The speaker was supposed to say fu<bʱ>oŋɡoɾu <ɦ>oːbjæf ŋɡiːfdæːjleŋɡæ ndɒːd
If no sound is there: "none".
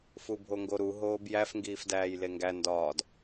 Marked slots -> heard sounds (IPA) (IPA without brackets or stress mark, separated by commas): bʱ, ɦ